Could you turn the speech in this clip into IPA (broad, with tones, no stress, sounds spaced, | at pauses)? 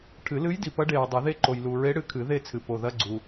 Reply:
ʈʰ ɨ˨˩˦ l ɨ˧˥ j d i˨ p ɐ˧˥ ɖ e˨ ɹ dˤ ɨ˨˩˦ ð e˦˨ ǃ o˨ j l u˨ ɹ e˧˥ ɽ ɨ˧˥ kʰ ɨ˨˩˦ ð e˦˨ t͡sʰ ɨ˨ p o˨ ð ɐ˧˥˧ ɡ͡ǀ u˨